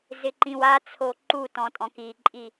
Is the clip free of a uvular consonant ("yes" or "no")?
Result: yes